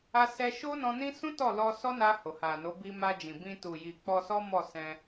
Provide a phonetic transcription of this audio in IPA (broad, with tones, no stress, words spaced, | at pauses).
a˧ sɛ˧ʃo˦nɔ̃˧nĩ˦ sũ˦ tɔ˦˨lɔ˧ sɔ˦na˧ ho˨ha˨no˨˦ bi˧ma˧d͡ʒĩ˨bĩ˧ tu˨ji˨ k͡pɔ˧sɔ˦mɔ˦˨sɛ̃˧